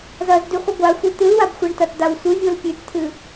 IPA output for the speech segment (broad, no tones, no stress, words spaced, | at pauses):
zɐzdʉχʷɨ ɡʷaxʷi t̪ɨlwabxʷeɳtɐt d̪awsʷɨvʲol pʲʉtt̪ʰɨ